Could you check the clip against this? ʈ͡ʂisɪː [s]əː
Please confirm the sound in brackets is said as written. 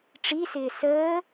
yes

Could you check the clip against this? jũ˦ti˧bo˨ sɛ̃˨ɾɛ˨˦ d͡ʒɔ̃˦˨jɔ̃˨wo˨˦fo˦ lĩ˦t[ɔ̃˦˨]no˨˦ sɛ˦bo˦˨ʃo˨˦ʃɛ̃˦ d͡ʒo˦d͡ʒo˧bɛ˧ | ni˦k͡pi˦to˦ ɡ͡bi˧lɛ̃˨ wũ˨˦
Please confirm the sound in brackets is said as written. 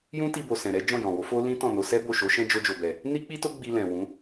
yes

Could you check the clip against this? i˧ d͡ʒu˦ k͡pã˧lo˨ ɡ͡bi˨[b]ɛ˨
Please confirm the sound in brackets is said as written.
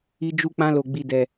no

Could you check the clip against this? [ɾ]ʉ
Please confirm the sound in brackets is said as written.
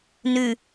no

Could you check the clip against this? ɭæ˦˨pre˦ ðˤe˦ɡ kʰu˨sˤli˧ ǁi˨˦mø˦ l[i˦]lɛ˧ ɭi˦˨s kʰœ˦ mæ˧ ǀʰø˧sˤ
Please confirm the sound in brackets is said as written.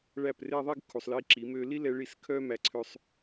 yes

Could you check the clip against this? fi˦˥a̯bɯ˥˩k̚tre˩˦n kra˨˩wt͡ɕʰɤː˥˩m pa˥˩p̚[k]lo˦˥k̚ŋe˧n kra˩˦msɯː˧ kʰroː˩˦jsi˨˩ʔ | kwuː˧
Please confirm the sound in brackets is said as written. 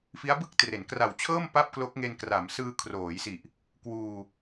yes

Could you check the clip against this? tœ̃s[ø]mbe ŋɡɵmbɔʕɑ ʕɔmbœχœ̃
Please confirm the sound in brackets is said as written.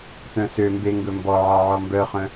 yes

